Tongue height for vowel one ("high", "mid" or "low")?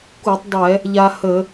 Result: high